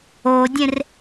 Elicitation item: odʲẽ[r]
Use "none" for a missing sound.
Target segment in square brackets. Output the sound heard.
r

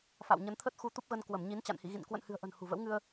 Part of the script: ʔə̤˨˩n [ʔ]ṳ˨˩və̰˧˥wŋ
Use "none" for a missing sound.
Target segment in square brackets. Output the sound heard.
h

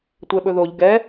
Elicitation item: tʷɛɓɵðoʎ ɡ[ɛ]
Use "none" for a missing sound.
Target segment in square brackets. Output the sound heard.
ɛ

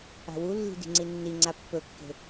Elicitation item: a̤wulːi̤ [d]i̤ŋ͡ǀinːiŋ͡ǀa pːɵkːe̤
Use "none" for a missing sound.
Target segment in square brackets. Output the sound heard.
d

